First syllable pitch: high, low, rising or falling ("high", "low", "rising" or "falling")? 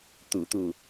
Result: low